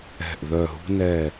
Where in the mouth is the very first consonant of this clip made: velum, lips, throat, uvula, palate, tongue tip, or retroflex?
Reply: throat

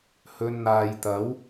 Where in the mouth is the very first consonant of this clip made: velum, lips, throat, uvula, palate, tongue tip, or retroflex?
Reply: throat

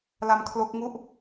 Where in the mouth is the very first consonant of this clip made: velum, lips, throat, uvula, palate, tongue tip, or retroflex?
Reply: tongue tip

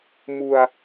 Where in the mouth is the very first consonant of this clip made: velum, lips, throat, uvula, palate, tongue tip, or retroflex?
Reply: lips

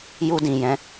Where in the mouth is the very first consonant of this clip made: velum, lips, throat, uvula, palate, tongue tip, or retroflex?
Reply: palate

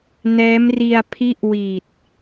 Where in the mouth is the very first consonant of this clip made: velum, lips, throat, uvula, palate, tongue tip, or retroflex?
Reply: tongue tip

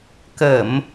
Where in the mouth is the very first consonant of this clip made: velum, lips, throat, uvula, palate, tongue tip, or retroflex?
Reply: velum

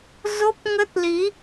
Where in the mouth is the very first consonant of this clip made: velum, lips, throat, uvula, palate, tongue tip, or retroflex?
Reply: tongue tip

